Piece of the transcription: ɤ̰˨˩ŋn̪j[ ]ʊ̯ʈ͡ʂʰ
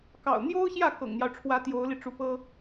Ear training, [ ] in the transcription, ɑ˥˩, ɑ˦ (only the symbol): ɑ˦